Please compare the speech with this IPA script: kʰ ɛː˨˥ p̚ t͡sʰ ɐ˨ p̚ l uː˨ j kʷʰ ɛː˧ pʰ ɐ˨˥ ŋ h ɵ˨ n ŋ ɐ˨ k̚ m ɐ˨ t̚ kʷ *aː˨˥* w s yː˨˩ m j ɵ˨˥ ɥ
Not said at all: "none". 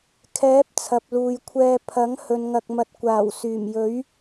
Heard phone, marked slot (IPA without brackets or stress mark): aː˨˩